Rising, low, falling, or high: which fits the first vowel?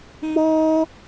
high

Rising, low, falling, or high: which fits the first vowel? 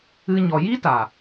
high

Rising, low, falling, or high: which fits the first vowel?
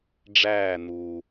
falling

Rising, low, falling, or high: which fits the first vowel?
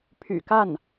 low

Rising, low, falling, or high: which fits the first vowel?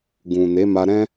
low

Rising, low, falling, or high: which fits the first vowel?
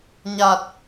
low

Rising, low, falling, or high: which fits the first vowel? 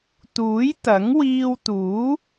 rising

